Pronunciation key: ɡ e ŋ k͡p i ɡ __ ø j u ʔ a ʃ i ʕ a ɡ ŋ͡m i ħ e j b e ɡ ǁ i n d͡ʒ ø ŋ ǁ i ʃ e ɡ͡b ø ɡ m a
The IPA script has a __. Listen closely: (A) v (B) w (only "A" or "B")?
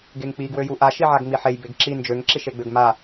B